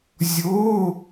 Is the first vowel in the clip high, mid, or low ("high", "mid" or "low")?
mid